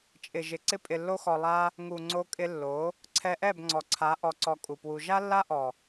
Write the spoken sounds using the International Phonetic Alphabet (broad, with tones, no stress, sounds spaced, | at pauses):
t͡ʃʼ ɪ˨ ʒ ɪ˨ ǀ ɪ˧ pʼ ɪ˨ lː o˧ x ɔ˨ lˠ a˦ | ŋ u˨ ŋ͡ǀ o˧ kʼ ɪ˧ lː o˨˦ | ǀʰ ɛ˧ ʔ ɛ˦˨ b ŋ͡ǀ ɔ˨ ǀʰ a˨˦ ʔ ɔ˧ ǀ ɔ˧ kʼ u˨ p w u˧ ʒ a˦ lː a˦ ʔ ɔ˨